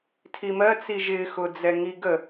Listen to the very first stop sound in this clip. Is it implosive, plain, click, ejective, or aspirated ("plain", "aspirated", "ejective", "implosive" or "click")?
aspirated